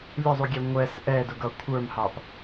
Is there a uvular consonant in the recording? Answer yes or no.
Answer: no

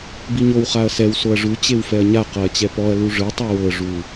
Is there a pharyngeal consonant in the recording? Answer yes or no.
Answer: no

